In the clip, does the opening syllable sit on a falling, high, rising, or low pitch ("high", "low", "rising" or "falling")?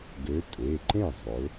rising